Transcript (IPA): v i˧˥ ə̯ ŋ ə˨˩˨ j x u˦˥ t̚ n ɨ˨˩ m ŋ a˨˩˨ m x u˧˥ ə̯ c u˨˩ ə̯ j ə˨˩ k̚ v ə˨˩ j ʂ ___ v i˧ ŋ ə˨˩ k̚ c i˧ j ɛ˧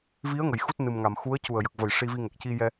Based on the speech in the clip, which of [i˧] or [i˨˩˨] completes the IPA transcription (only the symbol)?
i˧